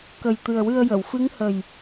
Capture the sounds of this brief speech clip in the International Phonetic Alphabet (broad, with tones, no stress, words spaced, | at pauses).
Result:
kə˨˩jt̪ɨ˨˩ə̯wɨ˧ə̯jə˨˩˨w fɨ˧˥ŋhə˨˩j